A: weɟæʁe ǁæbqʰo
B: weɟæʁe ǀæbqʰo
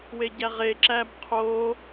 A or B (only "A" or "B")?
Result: A